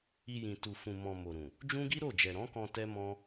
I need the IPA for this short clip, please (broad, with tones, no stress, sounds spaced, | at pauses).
i˧ j ĩ˨ t u˨ f ũ˨ m ɔ̃˨ m o˨ ɾ ũ˨ | d͡ʒ ũ˦ ɡ i˦ ɾ o˦˨ d͡ʒ ɛ˨ ɾ ɔ̃˨˦ k ɔ̃˧ t ɛ˦ m ɔ̃˦